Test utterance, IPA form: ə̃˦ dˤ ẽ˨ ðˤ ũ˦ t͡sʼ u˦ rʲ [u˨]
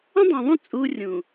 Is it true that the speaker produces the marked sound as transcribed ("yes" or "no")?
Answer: no